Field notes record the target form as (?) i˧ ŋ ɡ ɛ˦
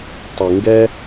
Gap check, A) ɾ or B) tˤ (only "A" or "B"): B